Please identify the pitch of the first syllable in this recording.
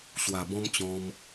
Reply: low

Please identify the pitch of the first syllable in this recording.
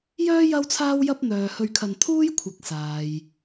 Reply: high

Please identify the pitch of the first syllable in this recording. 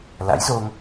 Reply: rising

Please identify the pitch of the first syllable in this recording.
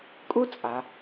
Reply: high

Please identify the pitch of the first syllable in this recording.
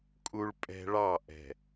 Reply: high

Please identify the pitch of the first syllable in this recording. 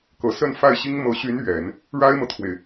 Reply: low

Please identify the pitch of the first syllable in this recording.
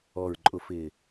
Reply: low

